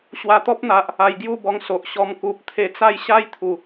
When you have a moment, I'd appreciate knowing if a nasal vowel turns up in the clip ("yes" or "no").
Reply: no